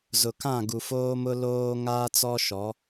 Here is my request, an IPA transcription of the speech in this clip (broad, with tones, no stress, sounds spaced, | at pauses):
z ʊ˨ k ã˦˨ ɡ u˨ f oː˦ m ʊ˦ l oː˦ ŋ aː˦ t͡s ɔ˦ ʃ ɔ˨˦